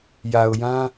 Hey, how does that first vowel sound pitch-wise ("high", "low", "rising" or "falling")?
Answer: low